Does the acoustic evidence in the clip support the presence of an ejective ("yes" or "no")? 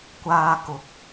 no